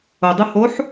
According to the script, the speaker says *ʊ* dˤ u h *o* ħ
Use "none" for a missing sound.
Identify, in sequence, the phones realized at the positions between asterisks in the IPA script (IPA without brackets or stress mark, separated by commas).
ʊ, o